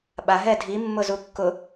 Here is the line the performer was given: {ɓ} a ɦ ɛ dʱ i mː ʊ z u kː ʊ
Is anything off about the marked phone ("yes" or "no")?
no